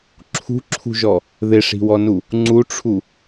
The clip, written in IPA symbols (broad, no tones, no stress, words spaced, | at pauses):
ǁʰṳǁʰṳʒɔ | ðɪʂi̤wɔnu | ŋ͡ǀuʈ͡ʂʰu